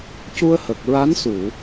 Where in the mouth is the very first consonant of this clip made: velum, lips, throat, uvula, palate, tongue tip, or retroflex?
palate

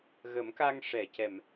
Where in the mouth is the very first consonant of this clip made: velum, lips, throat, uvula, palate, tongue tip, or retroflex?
velum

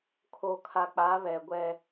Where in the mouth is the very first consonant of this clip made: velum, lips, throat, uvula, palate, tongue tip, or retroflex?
velum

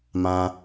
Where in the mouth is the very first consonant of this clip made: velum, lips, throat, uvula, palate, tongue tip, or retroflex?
lips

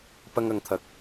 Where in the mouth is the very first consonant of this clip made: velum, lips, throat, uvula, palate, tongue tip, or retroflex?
lips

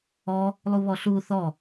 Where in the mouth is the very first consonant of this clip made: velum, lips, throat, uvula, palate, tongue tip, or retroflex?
tongue tip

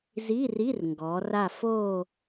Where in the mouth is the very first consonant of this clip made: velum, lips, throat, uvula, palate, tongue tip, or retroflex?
tongue tip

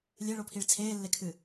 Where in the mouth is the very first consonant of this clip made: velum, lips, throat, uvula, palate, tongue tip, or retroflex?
tongue tip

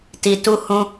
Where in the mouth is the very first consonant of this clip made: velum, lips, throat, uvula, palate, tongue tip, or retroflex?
tongue tip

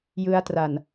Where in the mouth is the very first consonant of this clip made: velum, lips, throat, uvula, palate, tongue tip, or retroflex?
palate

